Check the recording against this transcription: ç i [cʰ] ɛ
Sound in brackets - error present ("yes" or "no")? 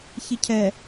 no